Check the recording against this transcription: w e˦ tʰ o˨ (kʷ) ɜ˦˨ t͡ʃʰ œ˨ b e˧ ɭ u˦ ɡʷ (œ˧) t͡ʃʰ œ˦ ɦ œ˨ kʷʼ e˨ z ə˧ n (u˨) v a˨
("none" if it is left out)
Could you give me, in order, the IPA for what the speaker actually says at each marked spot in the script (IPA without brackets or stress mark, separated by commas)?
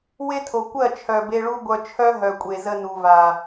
kʷ, œ˧, u˨